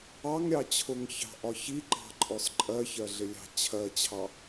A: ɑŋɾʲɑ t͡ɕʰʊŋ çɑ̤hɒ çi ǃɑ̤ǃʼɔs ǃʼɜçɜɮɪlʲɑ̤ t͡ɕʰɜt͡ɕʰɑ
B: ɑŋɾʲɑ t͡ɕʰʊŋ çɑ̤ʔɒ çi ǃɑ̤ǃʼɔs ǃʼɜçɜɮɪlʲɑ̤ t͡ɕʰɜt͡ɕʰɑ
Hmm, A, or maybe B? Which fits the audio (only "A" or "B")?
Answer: B